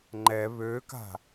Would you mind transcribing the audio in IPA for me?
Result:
ŋ͡ǃ ɛ β ø k a̤

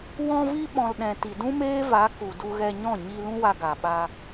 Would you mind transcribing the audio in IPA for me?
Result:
w ɔ̃˧ v i˧ ɓ ɔ̃˨ l ɗ ɛ̃˨ t i˨ d ũ˦ m eː˦ v a˨˦ k u˨ d u˧ ɣ ɛ˧ ɲ ɔ̃˦˨ ɲ i˧ l ũ˦ w a˧ ɡ a˨ ɓ a˧

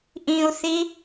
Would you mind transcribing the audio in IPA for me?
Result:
ʔ ĩ u̯ θ i

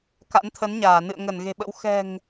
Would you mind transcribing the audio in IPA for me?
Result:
k a̰˧˥ n t̪ʰ ə˨˦ n ɲ aː˧˩ n ɨ̰˧˨ ə̯ ŋ ə˧˩ n ɣ e̤˨˩ ɓ ə̰˧˥ w x ɛ̤˨˩ ŋ

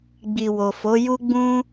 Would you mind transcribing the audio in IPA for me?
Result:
ɡ͡b i˨ w o˨ f o˨˦ j u˦ ɡ͡b ũ˦

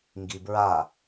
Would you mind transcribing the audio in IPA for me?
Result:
ŋ ɡ i b ɹ a

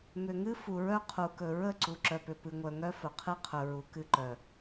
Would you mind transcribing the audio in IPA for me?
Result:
m ʏ˨ ŋ ɨ˦ f u˨ ɹ œ˦ qʰ u˨ k ɵ˨ ɹ ə˦˨ ǀ u˨ ǁ œ˨ p ʏ˨ p ɨ˨ ŋʷ œ˨ ŋ œ˦ f ɵ˨ qʰ ɨ˦ qʰ ɵ˨ ɹ u˨ k ɨ˦˨ ǃ œ˨

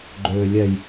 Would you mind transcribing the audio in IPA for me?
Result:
ɡ͡ǃ ʏː lʲ ɛ j

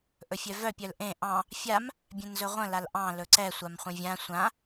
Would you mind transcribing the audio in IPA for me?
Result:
ʔ ɵ fʲ œ v œ pʲ œ l ʔ ẽ ʔ ɑ̃ | fʲ a m | bʲ ɛ̃ n z ɵ ʁʷ ə̃ l a l ʔ ɑ̃ l ɵ ǀ ɛ sʷ a m χʷ ə̃ vʲ ã sʷ ã

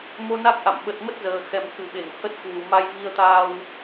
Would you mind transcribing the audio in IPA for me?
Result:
m o˧ n a˦˥ k̚ ʔ a̰˧˨ m ɓ ə˨˩ t̚ m ə˦˥ t̚ z əː˨˩ x ɛ˨˩ m k ɨ˨˩ ɓ e˧˩ ŋ h ə˦˥ t̚ k w u˨˩ m a˧ j v i˧ ə̯ t̪ aː˧ w

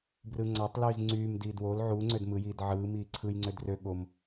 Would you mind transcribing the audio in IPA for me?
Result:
b r ɯ ŋ͡ǀ ɑ tˤ l yː z ŋ͡ǀ yː m d iː d w o l ʕ u ŋ͡ǀ ø d m ɯ j iː d ʕ ɯː m iː ǀʰ ɯ j ŋ͡ǀ ø d r ø ɠ o m

